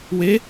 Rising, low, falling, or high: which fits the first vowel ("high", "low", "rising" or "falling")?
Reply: rising